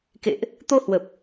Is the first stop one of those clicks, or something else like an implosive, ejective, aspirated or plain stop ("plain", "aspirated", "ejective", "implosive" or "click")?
plain